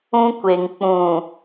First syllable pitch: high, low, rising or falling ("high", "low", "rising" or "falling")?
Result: high